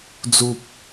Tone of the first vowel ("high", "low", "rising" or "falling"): low